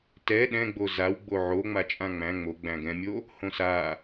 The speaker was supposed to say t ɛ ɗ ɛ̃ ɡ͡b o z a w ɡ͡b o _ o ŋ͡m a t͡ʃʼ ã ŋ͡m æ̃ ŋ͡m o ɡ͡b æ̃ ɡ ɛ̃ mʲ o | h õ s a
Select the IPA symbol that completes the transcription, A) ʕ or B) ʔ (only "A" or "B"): A